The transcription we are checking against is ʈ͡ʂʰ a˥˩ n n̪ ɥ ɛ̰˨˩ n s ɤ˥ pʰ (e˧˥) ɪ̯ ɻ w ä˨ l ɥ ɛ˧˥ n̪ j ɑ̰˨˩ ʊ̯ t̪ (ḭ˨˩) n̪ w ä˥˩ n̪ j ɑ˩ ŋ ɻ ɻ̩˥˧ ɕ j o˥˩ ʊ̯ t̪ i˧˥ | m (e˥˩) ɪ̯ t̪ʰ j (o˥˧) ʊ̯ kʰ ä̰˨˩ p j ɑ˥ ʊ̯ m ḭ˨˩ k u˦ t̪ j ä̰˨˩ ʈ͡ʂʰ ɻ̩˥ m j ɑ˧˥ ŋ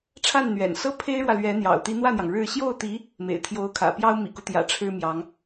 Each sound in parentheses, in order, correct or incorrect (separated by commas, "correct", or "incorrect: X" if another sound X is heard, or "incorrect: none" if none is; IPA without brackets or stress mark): incorrect: e˥, incorrect: i˧˥, incorrect: ḛ˨˩, incorrect: o˧˥